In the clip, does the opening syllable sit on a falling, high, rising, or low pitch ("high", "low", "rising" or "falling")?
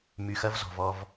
low